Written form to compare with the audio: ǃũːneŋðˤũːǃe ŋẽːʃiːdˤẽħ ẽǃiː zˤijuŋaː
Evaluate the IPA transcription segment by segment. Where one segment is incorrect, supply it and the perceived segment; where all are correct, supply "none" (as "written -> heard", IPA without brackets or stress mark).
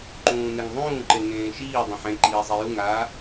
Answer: none